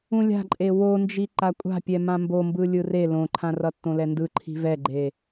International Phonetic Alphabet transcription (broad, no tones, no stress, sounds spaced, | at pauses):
ũ lʲ a̤ ǃʼ e w o n d͡ʒ i ǃ a kʷʼ a̤ pʲ ɛ m ã m b o m b ɯ lʲ ɯ r e l õ ǃʰ ã r ʌ tː õ l ɛ n d ɯ ǃʰ i̤ v ɛ ɡ͡ǃ e